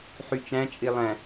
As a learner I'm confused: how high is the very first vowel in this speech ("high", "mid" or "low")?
high